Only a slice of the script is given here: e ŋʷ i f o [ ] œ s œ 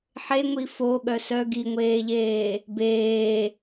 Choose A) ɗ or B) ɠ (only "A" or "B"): B